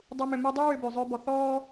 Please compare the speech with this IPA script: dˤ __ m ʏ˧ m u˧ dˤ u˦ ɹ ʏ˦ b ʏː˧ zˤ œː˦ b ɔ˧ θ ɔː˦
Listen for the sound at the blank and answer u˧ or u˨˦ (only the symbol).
u˧